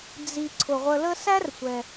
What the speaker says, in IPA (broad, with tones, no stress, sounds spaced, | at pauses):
d͡z i˨ ǀʰ ʊ˩ ʁʷ ə˨ l ə˦ s æ˦ r sʷ ɛ˩